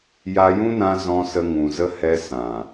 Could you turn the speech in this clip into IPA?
ja˧jũ˦nã˧ zɔ̃˧sə˧ ŋũ˨zə˧ hɛ˧ sã˨

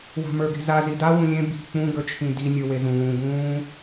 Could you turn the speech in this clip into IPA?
wa̤mə˞ɡe̤za zida wũlʲẽ bi̤ k͡pũ ɡə˞t͡ʃʰĩdi nʲə˞wezũːɡũː

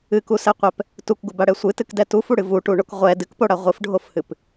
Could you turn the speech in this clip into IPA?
ɨkusɛqʷɛp | tukɡubaɽɛ sʷɨtɨkdɛ tufuɽɨ vuʈuɳok ʁʷɛ dɨkpoɽa ʁʷɨfɖʱofhɨp

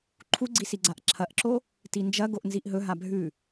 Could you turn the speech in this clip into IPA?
ǃʰuɡ͡ǀisi ɡ͡ǀaʔǁʰɐʔǁo | tind͡ʒɐ ɡoʔnziʔɦɵ ɦabʱʉ

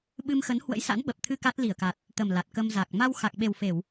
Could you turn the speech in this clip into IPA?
ɓɨ˧mxə˨˦n hwə̰˧˥jsa̰˧˥nɓə˨˩p̚t̪ʰɨ˧ ka˦˥t̚li˧˩ə̯ka˨˩t̚ | t̪ə˨˩m la˨˩t̚kə˧mza˨˩k̚ ma˧w xa˨˩k̚ɓe˨˩w fe˧˩˨w

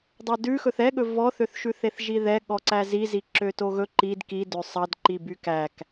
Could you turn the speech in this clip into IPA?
dˤɑdʉxɵθ ɛɠɵ vɔθøθʃʉθeθ ʒiðɛ ɠɔǀæzi ziǁøtoɣɵ ǃid kidø sˤɑdǃiby kæk

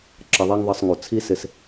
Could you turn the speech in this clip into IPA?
ǁʌ˧ðˤɛ˦ŋðˤʌ˧sˤ ŋu˨ t͡sʰi˦sɪ˧s

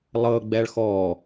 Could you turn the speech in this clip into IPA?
lˠɤɡ͡bɛɭ xɔ

